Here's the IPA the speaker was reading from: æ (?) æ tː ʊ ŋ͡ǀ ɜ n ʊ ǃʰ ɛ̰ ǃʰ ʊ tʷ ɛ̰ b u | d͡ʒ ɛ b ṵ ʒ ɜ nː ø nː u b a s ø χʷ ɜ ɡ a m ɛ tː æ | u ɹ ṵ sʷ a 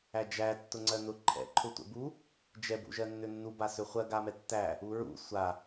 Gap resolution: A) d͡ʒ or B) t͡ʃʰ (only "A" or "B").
A